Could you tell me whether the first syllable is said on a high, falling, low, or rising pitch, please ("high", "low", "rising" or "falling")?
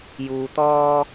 low